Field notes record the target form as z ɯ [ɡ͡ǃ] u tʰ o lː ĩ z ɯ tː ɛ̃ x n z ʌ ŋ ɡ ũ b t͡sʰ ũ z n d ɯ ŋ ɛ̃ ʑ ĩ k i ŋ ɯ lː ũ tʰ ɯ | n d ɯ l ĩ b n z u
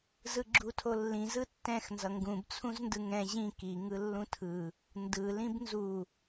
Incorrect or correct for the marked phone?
incorrect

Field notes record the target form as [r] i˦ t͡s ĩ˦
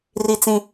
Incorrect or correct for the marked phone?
correct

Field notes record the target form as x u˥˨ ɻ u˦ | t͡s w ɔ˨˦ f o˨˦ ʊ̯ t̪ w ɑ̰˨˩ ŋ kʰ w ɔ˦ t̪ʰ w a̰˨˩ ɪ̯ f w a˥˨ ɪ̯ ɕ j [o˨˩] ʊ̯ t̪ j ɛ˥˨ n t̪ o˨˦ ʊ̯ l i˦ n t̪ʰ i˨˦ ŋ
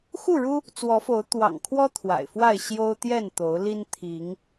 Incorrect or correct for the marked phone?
incorrect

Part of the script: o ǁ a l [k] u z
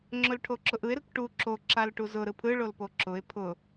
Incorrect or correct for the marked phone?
incorrect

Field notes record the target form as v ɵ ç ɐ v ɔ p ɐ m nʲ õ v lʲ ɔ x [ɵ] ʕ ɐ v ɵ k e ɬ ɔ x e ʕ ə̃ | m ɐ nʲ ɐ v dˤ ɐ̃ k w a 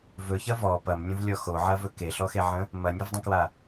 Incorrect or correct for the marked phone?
incorrect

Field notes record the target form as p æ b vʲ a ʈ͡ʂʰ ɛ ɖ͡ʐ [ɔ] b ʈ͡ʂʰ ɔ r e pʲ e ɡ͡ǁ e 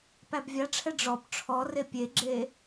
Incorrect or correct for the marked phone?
correct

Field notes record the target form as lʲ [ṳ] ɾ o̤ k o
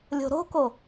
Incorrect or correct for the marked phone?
incorrect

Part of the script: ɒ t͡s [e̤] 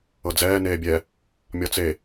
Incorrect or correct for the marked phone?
incorrect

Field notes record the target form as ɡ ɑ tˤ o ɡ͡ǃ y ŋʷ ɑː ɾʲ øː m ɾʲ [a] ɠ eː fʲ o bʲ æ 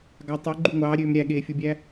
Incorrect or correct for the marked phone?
incorrect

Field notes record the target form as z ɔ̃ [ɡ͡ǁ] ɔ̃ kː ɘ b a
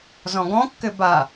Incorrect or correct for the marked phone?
incorrect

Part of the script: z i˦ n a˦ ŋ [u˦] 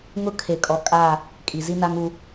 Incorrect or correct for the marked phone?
correct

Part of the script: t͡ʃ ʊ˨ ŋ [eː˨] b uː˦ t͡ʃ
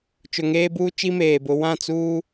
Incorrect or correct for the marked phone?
incorrect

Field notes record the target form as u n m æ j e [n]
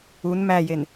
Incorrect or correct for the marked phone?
correct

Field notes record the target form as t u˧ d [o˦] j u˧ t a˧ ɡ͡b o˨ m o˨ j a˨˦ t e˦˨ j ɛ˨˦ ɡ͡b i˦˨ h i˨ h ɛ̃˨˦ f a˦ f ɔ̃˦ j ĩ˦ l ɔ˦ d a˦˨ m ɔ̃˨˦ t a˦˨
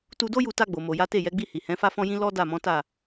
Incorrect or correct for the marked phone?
correct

